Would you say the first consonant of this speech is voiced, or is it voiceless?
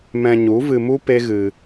voiced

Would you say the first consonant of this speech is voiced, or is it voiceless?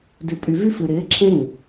voiced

